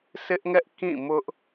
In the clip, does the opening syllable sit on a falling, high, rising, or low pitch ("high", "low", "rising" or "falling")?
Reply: high